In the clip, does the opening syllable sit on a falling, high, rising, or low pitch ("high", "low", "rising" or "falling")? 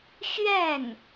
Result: falling